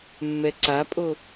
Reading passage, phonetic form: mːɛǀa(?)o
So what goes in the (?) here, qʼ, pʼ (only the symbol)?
pʼ